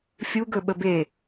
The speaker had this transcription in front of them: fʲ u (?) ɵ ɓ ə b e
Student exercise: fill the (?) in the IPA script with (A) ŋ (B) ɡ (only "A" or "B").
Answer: B